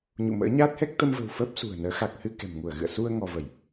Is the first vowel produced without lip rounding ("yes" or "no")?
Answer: no